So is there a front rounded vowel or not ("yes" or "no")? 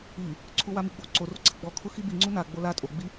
no